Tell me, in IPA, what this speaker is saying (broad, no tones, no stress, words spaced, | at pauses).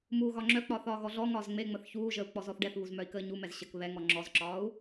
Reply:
muːɣɒŋ͡ǁœk͡pɒːθ ɒːɣɔɮɔŋɒːz ŋ͡meŋ͡məθ çuːʒəːu̯ k͡pɔzɔθɖɛθβuz mœi̯kəːɲumɛz ɕək βɛ ŋɔŋ͡ǁɔzǁɒːu̯